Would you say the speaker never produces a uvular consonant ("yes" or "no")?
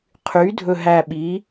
no